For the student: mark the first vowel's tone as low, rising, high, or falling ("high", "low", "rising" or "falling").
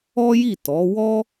high